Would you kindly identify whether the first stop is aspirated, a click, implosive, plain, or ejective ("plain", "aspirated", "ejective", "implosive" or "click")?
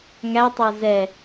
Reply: plain